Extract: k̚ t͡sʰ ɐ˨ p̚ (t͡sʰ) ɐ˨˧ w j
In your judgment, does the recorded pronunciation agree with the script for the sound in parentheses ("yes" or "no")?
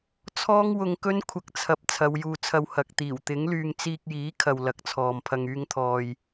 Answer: yes